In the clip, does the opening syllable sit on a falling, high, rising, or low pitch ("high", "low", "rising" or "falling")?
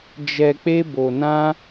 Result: low